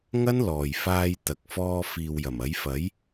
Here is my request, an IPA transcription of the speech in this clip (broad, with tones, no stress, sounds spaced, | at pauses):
ŋ ɐ˥ n l ɔː˨ j f aː˧ j t̪ ɐ˨ k̚ f ɔː˧ f iː˨ w j ɐ˨˩ m ɐ˨˥ j f ɐ˨˥ j